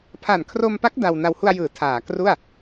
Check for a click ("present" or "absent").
absent